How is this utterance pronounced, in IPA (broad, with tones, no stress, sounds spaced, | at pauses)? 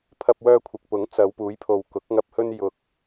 pʰ ɐ˧ p̚ w œː˧ kʷʰ ɪ˨ k̚ p ʊ˨˥ ŋ t͡s ɐ˨˧ w p uː˨˥ j pʰ o˨ w k ʊ˨˥ k̚ ŋ ɐ˧ p̚ h ɵ˧ n j ʊ˨ k̚